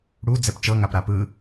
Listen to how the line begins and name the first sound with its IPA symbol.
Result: ɽ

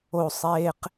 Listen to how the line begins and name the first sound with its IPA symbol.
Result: o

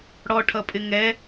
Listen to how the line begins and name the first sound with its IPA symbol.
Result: ɽ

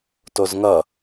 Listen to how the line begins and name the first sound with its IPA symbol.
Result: t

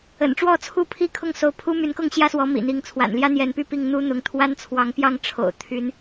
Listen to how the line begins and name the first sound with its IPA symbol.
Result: ə̰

